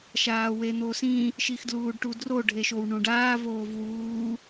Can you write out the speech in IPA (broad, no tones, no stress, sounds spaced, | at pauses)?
ʃ aː w e n̪ o s ĩ | ʃ i x d l uː ɖ ʈ u d r o ɖʱ e ʃ o w ɳ ũ ɖ aː v oː v w uː